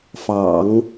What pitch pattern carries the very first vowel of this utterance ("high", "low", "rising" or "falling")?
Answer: low